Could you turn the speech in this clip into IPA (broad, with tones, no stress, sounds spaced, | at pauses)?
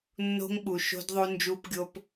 nː o̤˦ ŋ ɓ u˨ ʃ o̤˦ d ðˤ o˦ n d͡ʒ uː˦ p ɡʲ o˦ p